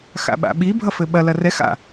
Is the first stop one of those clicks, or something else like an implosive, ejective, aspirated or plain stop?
implosive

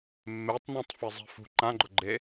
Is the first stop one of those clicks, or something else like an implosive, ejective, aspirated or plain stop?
plain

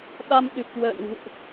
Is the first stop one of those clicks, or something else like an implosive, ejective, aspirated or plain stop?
implosive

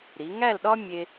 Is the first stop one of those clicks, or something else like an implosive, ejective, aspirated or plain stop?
implosive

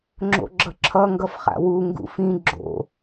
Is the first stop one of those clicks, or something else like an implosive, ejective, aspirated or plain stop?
click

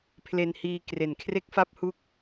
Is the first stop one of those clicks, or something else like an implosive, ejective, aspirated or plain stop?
aspirated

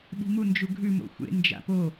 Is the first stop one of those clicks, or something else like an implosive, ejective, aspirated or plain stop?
implosive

